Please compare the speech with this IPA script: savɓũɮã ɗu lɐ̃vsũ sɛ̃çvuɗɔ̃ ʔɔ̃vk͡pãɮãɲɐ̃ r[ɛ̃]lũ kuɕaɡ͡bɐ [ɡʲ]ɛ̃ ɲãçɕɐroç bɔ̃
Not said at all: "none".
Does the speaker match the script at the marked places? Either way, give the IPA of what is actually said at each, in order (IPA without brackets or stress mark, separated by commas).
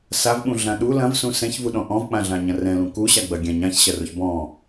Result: ɛ̃, ɡʲ